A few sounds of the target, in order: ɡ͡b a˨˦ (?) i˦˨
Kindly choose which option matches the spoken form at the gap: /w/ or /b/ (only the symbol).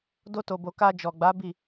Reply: b